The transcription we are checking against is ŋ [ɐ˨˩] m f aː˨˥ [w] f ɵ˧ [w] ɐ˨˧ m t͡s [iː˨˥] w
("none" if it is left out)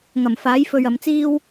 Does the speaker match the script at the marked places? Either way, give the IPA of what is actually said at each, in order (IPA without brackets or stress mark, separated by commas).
ɐ˨˩, j, ɥ, iː˥